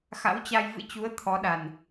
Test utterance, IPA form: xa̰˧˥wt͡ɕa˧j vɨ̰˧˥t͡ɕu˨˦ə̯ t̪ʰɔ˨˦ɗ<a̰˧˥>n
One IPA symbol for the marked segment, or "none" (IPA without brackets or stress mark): a˨˩